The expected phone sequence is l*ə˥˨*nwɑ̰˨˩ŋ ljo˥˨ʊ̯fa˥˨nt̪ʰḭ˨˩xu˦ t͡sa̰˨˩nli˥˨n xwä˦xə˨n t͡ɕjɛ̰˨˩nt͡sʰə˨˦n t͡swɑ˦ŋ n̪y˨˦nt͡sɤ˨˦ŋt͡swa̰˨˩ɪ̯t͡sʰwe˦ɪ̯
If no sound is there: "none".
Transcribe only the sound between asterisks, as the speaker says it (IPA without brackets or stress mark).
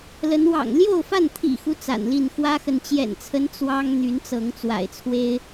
ə˨˦